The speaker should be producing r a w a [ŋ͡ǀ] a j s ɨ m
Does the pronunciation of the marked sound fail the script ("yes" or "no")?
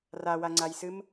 no